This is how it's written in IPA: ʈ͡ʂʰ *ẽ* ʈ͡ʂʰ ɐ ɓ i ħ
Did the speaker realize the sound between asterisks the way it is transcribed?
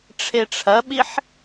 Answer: no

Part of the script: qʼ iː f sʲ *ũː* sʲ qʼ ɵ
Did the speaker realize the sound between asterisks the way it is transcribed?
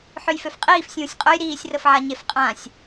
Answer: yes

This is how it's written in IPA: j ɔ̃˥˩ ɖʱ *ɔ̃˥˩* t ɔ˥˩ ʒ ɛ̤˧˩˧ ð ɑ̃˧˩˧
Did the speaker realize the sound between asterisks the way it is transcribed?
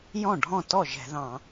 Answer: yes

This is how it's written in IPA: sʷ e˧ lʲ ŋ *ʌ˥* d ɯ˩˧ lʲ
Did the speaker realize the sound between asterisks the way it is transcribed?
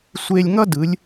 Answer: yes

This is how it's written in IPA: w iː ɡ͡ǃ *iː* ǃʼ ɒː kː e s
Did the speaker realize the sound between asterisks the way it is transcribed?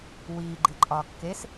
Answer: no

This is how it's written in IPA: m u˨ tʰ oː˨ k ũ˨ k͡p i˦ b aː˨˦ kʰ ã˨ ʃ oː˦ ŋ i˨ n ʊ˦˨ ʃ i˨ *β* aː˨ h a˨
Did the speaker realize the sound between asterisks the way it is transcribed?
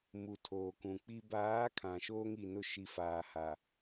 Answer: no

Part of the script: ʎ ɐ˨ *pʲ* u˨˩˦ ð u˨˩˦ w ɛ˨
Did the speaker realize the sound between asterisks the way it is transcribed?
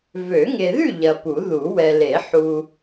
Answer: no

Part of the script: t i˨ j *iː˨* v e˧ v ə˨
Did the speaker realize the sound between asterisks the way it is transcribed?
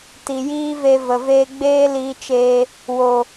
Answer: no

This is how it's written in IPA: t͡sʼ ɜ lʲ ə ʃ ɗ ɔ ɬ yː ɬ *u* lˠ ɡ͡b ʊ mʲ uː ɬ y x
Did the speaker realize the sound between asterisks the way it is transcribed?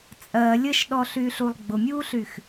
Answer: yes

